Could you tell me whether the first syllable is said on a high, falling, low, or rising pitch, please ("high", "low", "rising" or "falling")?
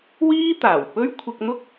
high